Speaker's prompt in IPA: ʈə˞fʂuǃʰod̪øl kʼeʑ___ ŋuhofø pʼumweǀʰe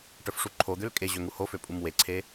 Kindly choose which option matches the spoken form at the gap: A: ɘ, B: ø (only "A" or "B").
B